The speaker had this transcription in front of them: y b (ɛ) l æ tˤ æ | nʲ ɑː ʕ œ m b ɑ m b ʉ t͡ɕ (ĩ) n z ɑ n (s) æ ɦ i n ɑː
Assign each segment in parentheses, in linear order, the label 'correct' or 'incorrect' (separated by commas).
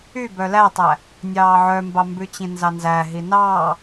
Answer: incorrect, correct, incorrect